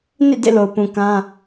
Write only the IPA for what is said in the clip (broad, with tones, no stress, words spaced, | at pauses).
nḭ˦˨ dḛ˦˨lo˨ʊ̯pũ˨ kã˦